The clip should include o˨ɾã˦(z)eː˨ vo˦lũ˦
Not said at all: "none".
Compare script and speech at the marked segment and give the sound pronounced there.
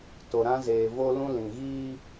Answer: z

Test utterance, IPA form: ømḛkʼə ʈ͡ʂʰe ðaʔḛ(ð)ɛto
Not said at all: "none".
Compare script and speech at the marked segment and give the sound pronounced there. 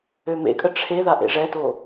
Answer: ʐ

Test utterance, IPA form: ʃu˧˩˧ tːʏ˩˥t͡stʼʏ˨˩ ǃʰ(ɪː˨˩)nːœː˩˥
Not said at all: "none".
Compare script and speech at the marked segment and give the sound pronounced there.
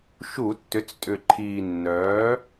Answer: iː˨˩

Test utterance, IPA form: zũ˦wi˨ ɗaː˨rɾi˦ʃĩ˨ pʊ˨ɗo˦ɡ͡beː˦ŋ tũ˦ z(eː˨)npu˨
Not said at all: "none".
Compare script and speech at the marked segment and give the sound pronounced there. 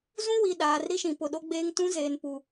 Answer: eː˨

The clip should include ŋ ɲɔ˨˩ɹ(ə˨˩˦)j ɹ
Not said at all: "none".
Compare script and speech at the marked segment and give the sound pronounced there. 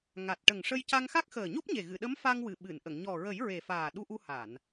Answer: ə˨˩˦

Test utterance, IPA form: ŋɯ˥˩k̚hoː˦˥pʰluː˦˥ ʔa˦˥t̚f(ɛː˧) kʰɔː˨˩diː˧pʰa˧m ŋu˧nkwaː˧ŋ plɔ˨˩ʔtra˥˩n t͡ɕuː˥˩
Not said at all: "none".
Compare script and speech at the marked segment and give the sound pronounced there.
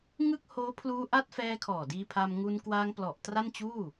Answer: ɛː˧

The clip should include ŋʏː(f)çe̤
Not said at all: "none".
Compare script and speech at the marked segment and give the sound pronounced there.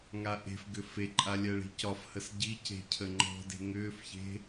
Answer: f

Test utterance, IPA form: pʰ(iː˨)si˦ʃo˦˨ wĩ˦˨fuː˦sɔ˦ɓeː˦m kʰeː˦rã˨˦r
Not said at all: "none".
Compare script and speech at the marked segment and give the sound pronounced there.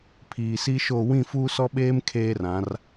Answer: iː˨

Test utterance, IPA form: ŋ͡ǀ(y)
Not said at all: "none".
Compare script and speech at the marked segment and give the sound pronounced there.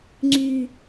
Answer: y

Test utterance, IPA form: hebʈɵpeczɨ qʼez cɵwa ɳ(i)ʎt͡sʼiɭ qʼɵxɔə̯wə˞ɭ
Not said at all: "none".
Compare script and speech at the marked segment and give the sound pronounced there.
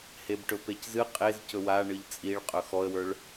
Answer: ɨ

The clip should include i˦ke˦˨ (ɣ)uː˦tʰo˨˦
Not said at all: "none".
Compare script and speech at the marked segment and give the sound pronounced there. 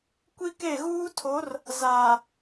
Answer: ɣ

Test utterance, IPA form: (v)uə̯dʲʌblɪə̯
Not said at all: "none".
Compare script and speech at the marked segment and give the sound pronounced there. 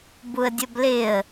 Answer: b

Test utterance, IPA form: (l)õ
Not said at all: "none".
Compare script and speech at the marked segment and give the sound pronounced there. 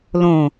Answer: l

